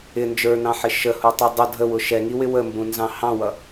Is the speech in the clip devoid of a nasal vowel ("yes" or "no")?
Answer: no